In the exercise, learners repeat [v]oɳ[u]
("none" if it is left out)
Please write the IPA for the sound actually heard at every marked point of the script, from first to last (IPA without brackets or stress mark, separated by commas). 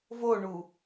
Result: v, u